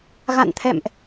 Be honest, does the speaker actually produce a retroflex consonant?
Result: no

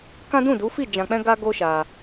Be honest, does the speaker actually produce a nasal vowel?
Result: yes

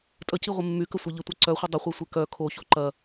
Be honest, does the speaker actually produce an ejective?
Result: yes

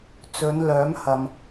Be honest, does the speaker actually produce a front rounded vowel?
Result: yes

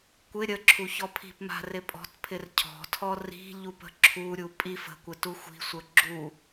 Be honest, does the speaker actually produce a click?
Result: yes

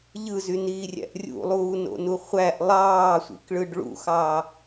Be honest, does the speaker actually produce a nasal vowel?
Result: no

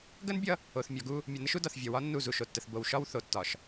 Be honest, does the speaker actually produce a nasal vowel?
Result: no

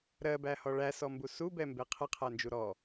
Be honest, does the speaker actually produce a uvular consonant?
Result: yes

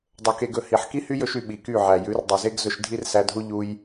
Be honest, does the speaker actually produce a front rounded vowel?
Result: yes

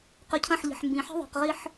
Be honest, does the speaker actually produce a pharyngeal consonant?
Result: yes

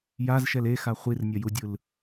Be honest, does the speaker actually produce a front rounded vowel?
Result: no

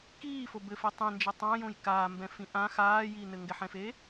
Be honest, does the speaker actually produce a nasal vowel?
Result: yes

